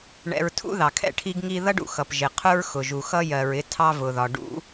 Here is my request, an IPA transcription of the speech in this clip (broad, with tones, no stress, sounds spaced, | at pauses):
ɳ ɛ̰˧ ɹ tʰ ṵ˥ ð ɑ˩ kʰ ɛ̰˥ ʈʰ i˥ ɡ ŋ i˥ ð ʌ˥ ɖ ṵ˩ x ʌ˩ p ʒ ɪ˩ qʰ ʊ˥ ɹ x ʊ˩ ʒ u˩ x ʌ˥ j ɜ˩ ɹ ɪ˥ tʰ ɑ˥ v ʊ˩ ð ɒ˩ ɖ ṵ˥